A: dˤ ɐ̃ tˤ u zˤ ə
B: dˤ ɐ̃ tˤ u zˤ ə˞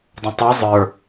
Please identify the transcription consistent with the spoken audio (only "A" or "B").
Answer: B